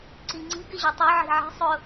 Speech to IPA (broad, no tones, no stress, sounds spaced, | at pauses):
ǀ i ŋ͡ǀ i̤ ɡ ɪ ʑ ø tˤ ø ʕ i̤ ʕ i̤ sˤ ʊ